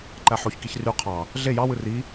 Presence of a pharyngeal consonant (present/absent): present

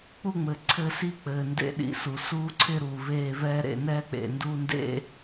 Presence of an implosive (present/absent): present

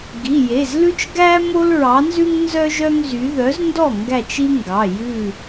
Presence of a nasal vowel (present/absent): absent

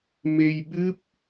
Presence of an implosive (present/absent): present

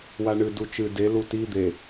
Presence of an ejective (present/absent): absent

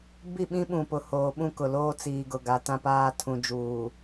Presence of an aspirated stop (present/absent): present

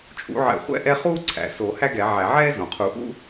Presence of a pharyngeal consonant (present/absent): present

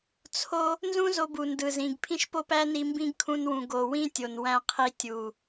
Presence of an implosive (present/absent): absent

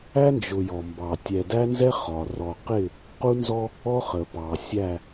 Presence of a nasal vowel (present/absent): absent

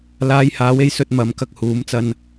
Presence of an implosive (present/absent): absent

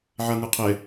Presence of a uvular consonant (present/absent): present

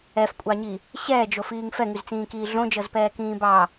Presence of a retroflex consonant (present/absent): absent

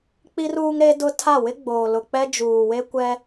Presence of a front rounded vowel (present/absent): absent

